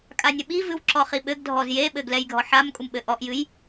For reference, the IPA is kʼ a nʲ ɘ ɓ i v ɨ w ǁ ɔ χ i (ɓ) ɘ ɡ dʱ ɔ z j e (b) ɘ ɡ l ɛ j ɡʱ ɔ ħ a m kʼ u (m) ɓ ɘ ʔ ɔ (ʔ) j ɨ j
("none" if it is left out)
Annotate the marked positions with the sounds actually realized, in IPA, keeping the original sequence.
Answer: ɓ, ɓ, m, ʔ

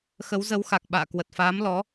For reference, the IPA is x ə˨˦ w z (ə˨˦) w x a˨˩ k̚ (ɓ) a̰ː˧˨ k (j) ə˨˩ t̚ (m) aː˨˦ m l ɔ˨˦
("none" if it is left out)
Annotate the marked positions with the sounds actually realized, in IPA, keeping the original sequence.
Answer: ə˨˦, ɓ, w, f

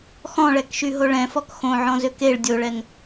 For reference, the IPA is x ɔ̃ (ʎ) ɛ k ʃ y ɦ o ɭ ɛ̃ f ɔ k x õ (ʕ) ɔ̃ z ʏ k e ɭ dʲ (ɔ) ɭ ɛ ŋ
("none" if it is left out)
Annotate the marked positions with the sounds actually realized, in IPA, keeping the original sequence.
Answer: ɭ, ʕ, o

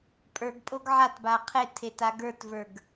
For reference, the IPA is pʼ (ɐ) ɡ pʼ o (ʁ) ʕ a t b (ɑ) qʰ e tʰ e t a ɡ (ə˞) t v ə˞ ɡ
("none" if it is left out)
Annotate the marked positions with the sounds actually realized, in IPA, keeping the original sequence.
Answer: ə˞, ɡ, a, ə˞

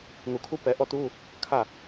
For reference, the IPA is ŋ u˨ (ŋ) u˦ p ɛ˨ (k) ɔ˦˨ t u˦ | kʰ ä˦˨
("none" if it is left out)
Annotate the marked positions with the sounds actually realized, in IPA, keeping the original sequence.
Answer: kʰ, ʔ

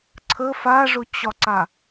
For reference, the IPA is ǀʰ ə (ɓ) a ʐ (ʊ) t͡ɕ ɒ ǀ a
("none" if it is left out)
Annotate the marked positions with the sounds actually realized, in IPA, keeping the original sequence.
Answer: f, ʊ

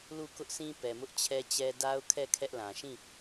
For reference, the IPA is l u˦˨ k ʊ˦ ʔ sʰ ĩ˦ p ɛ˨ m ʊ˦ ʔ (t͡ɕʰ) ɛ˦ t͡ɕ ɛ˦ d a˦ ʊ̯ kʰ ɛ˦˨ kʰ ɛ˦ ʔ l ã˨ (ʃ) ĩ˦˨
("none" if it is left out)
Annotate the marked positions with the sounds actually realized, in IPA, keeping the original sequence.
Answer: t͡ɕʰ, ʃ

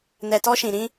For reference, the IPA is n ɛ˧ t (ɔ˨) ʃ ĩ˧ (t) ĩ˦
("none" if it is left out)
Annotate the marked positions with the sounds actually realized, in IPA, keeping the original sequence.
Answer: ɔ˦, ɾ

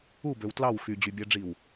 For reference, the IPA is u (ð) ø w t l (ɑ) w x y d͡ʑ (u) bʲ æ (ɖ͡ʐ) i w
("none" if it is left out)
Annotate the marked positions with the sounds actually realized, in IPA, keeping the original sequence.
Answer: b, ɑ, y, ɖ͡ʐ

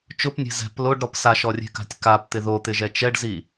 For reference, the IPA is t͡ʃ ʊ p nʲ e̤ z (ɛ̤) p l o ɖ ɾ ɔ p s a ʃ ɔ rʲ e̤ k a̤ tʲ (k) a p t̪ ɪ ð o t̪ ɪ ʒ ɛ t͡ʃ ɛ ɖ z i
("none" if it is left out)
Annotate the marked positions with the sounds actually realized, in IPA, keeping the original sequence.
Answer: ɛ̤, k

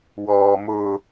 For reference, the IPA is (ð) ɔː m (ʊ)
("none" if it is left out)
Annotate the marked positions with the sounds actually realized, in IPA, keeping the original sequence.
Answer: w, ʊ

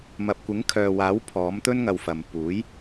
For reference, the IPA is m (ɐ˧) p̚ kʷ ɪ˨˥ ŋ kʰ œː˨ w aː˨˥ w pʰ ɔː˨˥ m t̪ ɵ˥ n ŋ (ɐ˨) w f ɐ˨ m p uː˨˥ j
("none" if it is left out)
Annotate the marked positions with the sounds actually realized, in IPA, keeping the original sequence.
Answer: ɐ˨, ɐ˨

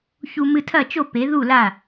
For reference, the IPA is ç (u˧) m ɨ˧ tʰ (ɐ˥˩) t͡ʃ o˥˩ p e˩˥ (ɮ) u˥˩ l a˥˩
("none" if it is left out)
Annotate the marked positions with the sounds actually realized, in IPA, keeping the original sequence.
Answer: u˧, ɐ˥˩, ð

